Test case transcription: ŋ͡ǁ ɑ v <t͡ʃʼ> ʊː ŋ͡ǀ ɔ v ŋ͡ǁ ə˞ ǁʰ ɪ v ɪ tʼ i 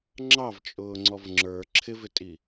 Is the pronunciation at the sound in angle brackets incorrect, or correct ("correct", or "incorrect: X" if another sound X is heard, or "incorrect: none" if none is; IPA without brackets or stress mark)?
correct